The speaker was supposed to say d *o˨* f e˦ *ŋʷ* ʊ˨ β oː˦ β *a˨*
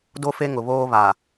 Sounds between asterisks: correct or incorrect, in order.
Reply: incorrect: o˦, incorrect: ŋ, correct

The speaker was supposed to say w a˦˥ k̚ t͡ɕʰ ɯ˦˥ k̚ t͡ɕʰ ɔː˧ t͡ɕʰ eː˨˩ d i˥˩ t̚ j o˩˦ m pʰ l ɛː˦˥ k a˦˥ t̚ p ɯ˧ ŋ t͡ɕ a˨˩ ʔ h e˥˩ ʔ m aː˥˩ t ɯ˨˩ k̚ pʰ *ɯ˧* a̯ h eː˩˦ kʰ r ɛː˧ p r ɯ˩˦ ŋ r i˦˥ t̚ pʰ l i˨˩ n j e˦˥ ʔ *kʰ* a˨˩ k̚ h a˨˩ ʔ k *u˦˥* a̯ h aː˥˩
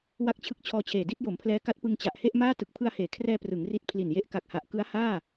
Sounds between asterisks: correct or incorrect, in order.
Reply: correct, incorrect: k, incorrect: ɯ˦˥

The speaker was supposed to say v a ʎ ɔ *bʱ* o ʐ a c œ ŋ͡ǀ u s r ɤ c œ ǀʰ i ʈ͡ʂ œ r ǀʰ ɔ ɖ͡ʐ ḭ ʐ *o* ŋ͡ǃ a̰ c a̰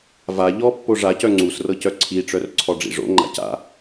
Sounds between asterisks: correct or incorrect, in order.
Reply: incorrect: pː, incorrect: o̰

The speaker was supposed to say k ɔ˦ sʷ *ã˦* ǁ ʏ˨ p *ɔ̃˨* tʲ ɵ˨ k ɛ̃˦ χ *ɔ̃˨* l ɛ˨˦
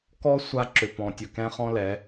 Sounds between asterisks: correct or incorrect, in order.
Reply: incorrect: a˦, correct, incorrect: ɔ̃˦

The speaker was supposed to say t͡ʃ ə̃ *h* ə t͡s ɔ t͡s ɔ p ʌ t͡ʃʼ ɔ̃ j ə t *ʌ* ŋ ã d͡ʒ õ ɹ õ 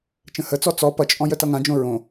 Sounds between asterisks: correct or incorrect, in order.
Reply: correct, correct

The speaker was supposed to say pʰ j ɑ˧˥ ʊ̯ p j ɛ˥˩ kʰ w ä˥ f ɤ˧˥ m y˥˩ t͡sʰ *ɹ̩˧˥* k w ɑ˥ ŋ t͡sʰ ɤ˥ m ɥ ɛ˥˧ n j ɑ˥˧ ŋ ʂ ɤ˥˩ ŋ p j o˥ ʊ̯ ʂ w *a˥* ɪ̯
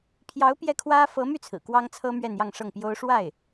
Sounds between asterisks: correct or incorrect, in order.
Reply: incorrect: ɹ̩˨˩, incorrect: a˥˩

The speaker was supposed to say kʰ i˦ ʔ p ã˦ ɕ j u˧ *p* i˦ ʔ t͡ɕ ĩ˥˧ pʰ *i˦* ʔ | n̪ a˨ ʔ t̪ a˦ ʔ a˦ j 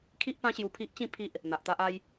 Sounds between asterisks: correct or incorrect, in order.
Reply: incorrect: pʰ, correct

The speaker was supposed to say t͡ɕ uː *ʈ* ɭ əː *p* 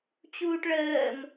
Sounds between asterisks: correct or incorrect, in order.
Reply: correct, incorrect: m

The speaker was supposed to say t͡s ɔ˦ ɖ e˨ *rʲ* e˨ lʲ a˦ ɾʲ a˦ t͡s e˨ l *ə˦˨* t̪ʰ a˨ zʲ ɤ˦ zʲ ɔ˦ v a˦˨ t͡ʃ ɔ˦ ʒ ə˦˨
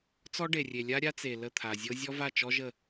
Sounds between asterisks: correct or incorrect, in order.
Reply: correct, correct

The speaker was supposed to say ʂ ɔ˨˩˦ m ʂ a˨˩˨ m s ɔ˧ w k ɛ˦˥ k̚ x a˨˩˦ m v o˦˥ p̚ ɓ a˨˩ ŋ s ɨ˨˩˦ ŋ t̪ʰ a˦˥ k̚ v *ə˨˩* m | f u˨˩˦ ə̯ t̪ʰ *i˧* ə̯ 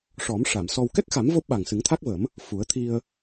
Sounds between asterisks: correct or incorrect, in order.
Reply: incorrect: ə˨˩˦, correct

